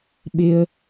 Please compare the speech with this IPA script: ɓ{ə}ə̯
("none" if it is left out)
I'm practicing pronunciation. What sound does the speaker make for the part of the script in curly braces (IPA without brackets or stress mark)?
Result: ɪ